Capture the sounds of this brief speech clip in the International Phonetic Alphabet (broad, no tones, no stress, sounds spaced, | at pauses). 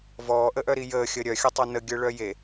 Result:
v ɔː ʔ ə ʔ œ ɾ i j əː xʲ əː ɾʲ œ xʲ ə tˤ œ n ə ɡʲ œ ɭ œ j e